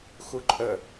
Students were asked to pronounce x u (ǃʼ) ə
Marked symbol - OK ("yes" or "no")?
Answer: yes